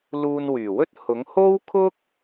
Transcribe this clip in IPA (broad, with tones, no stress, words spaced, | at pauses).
luː˧n wyː˨˩wɵ˥t̚ hʊ˨˥ŋ ho˥wkʰʊ˥k̚